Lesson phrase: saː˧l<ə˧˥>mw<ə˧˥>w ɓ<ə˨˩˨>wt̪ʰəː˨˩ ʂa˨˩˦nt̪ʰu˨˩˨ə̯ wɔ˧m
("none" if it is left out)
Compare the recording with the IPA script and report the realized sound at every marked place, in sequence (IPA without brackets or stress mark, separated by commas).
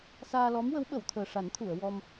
ɔ˧˥, ə˧˥, ə˨˩˨